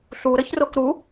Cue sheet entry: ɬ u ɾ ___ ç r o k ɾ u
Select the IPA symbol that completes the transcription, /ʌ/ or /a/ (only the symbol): ʌ